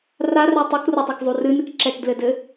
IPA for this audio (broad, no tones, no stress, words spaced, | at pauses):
rarɛ tˤukrotˤekzˤu rɨnɨk ǁɛkdlɘdɘ